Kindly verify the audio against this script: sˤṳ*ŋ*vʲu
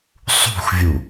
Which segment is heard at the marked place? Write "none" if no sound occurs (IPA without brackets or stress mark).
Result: x